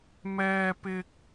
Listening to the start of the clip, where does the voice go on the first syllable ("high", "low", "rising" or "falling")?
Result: high